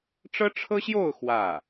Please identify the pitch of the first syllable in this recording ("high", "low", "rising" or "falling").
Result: high